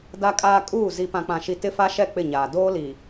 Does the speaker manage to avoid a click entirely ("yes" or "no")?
yes